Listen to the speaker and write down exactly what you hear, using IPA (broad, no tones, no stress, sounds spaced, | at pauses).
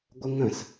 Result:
ɡʷ ə ŋ ə̃ s